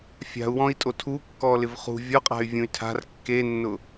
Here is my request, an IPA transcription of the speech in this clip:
fʲ a̤ u̯ w ɔ̃ i̯ tʼ o tʰ u kː ɔ l ɪ v χ ṳ vʲ ɔ qʼ a̤ y̯ vʲ ũ y̯ tʰ a̤ r kː e nː ʊ

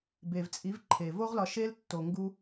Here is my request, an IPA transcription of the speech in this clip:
b e˨ v t͡sʼ i˨˦ v ǃʰ e˨ v o˦ ʁ l ɒ˧ ʃ e˦ l tː o˧ ŋ ɡ u˦

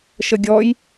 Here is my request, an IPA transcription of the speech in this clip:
ʃ ə ɡʲ ɔ j

